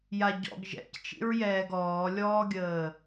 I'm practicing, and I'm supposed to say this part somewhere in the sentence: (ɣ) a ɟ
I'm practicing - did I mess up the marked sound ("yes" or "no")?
yes